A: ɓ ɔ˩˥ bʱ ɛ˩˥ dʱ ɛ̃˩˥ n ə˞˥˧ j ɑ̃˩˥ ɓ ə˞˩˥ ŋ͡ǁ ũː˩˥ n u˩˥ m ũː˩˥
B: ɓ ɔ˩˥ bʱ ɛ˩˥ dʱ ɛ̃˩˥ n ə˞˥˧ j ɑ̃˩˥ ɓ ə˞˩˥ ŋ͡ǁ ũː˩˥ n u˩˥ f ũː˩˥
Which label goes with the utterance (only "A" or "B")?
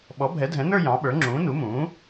A